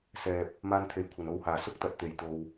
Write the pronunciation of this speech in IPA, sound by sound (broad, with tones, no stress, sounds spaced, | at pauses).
s ɛː˨ p̚ | m aː˧ n t̪ʰ e˨˩ j kʷʰ ɐ˨˩ n o˧ w h aː˨˩ s ʊ˥ k̚ t̪ ɐ˨ t̚ t̪ e˨˩ j t̪ o˨ w